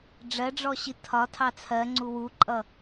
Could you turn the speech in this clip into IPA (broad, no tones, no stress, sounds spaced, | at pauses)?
ɖ͡ʐ ɜ ɖ͡ʐ ɔ ɕ i tʰ ɒ tʰ ɑ t͡sʰ ɜ ŋ͡ǀ u w u ǃʼ ʌ